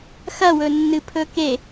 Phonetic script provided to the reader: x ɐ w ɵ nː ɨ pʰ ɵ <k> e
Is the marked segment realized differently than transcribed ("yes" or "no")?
no